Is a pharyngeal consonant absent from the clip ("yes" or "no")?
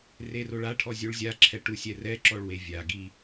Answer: yes